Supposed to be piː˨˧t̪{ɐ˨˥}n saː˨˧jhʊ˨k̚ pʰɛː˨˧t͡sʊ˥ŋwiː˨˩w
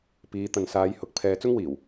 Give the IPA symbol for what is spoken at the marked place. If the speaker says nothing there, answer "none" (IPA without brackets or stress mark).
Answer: ɐ˨